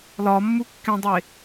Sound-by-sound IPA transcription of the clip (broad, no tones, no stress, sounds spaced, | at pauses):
l ɒ mː u kː ẽ dˤ e